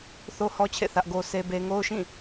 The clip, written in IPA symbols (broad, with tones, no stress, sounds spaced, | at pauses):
θ o˦ h ɔ˦ t͡ɕʰ ḛ˦˨ θ ä˦ ʔ ɡ o˦ s e˦ b e˦ ŋ o˦ ʊ̯ ʃ ĩ˦˨